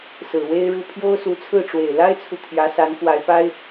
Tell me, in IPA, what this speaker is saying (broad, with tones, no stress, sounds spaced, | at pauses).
s ɹ̩˨˩ w e˥ ɪ̯ ɻ u˥˩ pʰ j o˥ ʊ̯ s u˧˥ t͡sʰ ɹ̩˥˩ ʈ͡ʂ w e˨˩ ɪ̯ l a˥ ɪ̯ t͡sʰ u˨ t̪ʰ j ä˧˥ s a˧˥ n k w a˧˥ ɪ̯ p a˥ ɪ̯